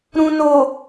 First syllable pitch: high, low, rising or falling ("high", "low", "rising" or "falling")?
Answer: low